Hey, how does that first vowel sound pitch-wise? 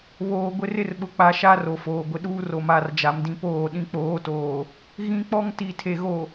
low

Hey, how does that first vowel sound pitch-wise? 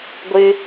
high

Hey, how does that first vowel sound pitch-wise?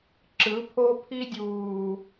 rising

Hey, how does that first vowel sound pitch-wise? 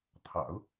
low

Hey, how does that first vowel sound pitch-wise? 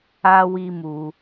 high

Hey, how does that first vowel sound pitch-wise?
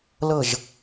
falling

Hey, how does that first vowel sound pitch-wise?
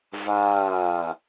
falling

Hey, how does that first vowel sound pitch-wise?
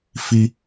high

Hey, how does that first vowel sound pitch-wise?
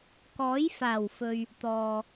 rising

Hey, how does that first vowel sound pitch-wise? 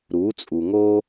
rising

